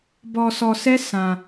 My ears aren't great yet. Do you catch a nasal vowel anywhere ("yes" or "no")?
yes